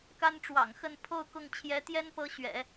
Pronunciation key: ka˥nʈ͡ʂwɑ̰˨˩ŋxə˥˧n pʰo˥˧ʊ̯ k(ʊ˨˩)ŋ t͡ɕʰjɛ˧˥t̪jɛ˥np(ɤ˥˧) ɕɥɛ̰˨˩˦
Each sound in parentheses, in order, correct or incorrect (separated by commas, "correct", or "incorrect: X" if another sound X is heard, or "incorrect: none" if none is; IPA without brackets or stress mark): incorrect: ʊ˥˩, incorrect: ɤ˧˥